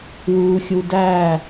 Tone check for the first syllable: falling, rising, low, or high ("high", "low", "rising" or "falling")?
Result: low